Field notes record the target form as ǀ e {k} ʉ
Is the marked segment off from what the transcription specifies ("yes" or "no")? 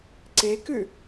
no